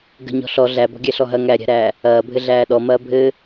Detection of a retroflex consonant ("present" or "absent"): absent